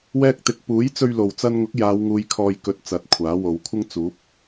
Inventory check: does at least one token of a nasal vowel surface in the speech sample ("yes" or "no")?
no